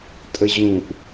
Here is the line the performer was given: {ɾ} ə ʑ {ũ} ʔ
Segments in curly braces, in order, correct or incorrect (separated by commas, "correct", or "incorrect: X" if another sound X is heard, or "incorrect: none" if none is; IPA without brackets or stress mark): incorrect: tʼ, correct